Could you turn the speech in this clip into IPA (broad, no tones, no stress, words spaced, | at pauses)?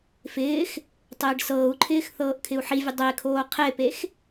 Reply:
fɪːx | tˤɪːɖsɤːu̯ǃʰɪːx θɤːʔkʰɪu̯ħivʲə dˤekʰoː qʰepex